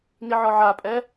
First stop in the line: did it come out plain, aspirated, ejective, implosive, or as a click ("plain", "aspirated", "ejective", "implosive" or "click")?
ejective